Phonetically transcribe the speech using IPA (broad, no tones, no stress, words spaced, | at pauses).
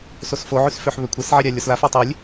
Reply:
sosfoʕys føħβøkʷʰesʕe ɾʲalʲɔslafɔ tˤelʲ